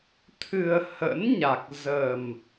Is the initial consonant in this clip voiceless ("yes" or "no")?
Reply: yes